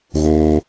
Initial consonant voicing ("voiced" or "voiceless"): voiced